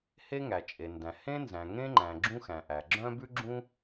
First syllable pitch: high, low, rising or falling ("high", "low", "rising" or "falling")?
high